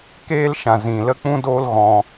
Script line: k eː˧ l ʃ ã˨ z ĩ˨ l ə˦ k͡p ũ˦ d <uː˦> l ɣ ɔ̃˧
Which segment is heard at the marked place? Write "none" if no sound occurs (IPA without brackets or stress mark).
oː˦